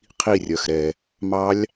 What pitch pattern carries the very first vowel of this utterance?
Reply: falling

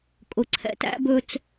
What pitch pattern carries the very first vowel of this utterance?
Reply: low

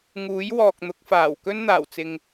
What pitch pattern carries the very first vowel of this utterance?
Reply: rising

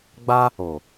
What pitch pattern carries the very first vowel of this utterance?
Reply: high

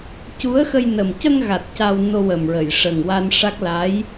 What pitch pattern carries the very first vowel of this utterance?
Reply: rising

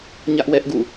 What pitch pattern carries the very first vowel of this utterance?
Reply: high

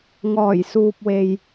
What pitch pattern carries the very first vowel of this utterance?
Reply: low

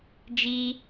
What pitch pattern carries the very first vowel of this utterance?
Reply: high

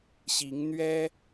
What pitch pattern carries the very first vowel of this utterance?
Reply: rising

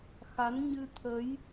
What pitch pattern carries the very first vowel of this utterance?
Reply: rising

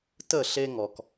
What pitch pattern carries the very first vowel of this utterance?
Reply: falling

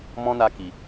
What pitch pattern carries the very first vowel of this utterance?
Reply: high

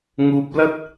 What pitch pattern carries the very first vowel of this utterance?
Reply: low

